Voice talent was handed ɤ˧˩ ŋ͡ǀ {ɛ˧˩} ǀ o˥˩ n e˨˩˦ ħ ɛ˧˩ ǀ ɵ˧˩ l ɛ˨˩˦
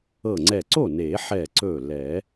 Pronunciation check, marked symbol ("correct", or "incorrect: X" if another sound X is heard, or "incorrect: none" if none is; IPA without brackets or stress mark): correct